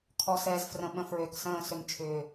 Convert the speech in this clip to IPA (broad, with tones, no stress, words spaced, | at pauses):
kʰɔ˨sɛː˨zfrə̃˨ ɓə̃˨fɹø˨ksə̃ː˦˨ sø˨mt͡ʃʰʏː˨